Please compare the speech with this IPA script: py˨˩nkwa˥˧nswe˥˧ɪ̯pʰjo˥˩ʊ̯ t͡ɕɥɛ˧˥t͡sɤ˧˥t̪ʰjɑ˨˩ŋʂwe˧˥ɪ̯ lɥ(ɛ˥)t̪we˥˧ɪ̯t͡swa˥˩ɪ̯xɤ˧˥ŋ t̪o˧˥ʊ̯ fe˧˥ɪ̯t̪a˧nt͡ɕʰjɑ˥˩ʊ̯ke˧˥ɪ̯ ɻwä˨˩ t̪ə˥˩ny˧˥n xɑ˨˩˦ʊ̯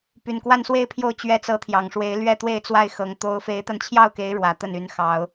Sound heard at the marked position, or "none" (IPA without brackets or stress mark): ɛ˥˧